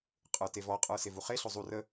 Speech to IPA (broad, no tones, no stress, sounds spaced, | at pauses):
qʼ ə˞ t e v ɔ qʼ ə˞ s e v u χ e ɬ o zˤ u r ə